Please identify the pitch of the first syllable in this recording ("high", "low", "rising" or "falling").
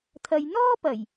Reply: low